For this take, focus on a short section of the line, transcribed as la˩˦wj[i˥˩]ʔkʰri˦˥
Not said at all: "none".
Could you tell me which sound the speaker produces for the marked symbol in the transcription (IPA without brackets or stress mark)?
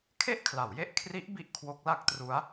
e˥˩